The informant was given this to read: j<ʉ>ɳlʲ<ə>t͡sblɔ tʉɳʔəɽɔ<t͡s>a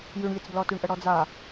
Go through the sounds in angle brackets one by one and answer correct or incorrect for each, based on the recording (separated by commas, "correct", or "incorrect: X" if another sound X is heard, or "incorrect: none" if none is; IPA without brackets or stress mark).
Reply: correct, correct, incorrect: d͡z